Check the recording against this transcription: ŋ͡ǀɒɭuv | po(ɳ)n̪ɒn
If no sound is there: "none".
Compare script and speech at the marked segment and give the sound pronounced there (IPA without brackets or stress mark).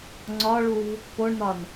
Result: ɳ